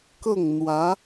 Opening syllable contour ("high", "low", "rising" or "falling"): falling